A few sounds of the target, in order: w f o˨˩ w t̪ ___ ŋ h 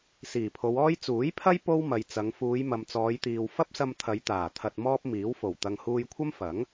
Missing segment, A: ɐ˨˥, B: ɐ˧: B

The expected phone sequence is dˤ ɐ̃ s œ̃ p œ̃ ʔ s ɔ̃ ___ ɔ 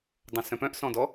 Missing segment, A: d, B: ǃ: A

